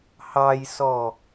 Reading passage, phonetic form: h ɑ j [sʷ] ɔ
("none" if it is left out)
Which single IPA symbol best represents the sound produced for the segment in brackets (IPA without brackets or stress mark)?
s